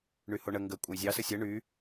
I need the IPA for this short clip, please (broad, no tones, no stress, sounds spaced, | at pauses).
ɳ y h o ɳ ə ŋ ɡ ə kʷʼ ə j zʲ ɑ s ə sʲ ə ɳ y